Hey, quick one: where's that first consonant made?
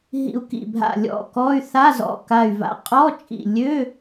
throat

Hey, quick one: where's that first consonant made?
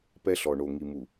lips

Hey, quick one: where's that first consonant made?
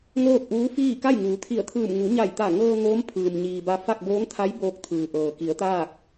velum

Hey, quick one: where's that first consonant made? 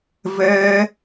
lips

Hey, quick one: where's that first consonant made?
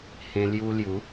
throat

